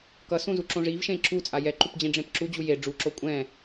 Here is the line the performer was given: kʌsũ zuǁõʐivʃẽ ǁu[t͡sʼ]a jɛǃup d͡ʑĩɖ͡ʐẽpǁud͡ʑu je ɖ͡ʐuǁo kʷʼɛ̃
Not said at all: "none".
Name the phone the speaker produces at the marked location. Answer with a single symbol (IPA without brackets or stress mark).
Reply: t͡sʼ